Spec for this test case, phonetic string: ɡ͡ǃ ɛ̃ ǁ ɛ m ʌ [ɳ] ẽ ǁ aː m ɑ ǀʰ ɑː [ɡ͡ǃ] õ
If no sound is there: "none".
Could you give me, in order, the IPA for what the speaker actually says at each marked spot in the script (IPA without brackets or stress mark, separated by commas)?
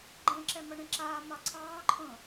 ɳ, ǃʰ